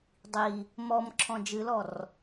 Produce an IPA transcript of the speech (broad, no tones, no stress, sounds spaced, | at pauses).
dˤ i | m ɔ m ǁʰ ɔ̃ d͡ʒ ɨ l ɔ r